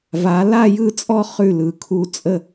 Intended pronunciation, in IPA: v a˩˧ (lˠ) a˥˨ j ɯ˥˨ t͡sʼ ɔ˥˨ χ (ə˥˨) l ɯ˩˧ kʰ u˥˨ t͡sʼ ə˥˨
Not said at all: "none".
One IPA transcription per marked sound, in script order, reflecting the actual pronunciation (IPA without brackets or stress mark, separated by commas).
l, ʉ˥˨